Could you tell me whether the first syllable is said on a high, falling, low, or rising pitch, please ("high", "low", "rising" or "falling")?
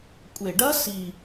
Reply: low